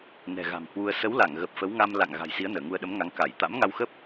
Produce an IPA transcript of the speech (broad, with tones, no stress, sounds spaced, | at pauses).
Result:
n ɛ̤˨˩ ɣ a̤˨˩ m h w u˧ ə̯ s ə˨˦ w l a˧˩ ŋ ɣ ə˨˩ p̚ f ə˨˦ w ŋ a˧ m l a̰˧˨ ŋ ɣ a̤˨˩ j s i˨˦ ə̯ n əː˧˩ ŋ u˧ ə̯ ɗ ə˨˦ m ŋ a˨˦ ŋ k a˧˩ j t̪ a̰˧˥ m ŋ a˧ w x ə˦˥ p̚